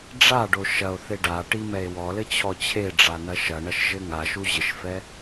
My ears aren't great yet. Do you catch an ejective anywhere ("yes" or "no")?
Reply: no